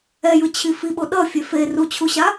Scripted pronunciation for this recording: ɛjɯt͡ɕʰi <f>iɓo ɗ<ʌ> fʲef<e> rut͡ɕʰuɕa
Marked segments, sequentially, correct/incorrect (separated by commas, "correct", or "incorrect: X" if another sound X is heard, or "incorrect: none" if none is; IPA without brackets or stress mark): correct, correct, correct